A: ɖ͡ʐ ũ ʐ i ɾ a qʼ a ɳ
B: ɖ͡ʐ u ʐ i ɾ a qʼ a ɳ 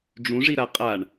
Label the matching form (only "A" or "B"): A